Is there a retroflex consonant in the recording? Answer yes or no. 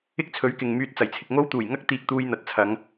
no